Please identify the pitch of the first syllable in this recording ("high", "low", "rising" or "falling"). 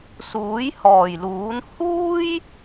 rising